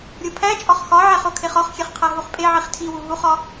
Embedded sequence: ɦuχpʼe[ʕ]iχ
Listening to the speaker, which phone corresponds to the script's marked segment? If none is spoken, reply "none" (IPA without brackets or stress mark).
ʕ